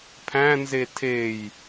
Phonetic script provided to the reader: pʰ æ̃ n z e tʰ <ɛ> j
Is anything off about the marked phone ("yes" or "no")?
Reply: yes